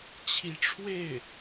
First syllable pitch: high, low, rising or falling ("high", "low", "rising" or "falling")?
rising